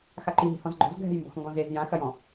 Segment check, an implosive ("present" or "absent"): absent